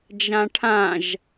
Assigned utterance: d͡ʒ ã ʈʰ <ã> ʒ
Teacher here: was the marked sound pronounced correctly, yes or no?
yes